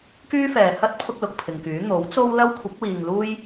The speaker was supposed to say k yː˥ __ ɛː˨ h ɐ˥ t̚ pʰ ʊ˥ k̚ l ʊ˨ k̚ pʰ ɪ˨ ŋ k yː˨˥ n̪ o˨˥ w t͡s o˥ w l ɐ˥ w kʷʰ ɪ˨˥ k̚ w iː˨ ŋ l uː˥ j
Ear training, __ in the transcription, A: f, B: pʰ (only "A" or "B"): A